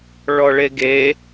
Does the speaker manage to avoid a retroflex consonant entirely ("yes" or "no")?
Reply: no